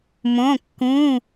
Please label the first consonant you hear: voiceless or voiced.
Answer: voiced